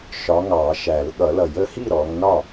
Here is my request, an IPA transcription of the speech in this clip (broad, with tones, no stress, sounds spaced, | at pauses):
ʃ ɒ˨˦ ŋ ɑ˨˩˦ ʃ æ˨˩˦ l ɠ ʌ˨˩˦ l ʌ˨˩˦ j ə˨˦ h i˥˩ ɾ ɔ˨˦ ŋ n ɒ˥˩